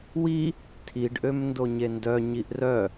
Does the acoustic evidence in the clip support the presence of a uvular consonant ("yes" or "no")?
no